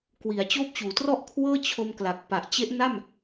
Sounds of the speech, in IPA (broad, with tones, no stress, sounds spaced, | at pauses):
k w i˩˦ a̯ t͡ɕ oː˦˥ p̚ t͡ɕ uː˩˦ t r ɔ˥˩ ʔ kʰ w ɤː˥˩ t͡ɕʰ o˧ m k l a˨˩ k̚ p a˨˩ ʔ t͡ɕ e˦˥ ʔ n a˥˩ m